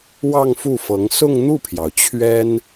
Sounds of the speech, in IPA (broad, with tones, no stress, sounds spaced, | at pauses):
w ɑ˥˧ ŋ f u˥˩ f ɤ˧˥ ŋ s ʊ˥˧ ŋ n̪ u˥˩ pʰ j ɑ˩ ʊ̯ t͡ɕʰ ɥ ɛ˥ n